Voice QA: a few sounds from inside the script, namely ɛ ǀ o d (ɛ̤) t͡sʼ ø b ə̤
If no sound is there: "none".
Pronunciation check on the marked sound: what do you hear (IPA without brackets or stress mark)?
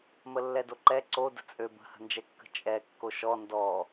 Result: ə̤